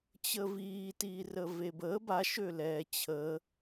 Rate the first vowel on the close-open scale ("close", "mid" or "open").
mid